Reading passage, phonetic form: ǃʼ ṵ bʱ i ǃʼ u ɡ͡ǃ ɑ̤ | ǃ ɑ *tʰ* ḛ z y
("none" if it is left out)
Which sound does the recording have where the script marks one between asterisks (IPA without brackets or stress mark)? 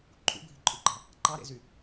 ɾ